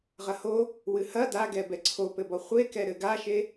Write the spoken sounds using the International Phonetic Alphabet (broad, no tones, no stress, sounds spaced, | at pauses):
ʁ ɐ h o | w ɨ h ɐ d a ɡ ɛ b ɛ ǀʰ o p ɘ b ɔ χʷ e k ɛ ɾ ɘ ɡ a ʃ e